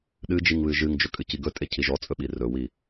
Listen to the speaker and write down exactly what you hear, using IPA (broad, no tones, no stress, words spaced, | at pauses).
ɗɨd͡ʒiŋ βɨʒɨŋd͡ʒɵ kʼɨciɡɵtʼe cʰiʒɔt͡sʼɵ ɓirɵwi